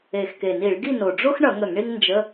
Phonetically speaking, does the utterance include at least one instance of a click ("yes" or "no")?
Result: no